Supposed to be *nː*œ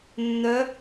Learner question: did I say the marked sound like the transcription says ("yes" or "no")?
yes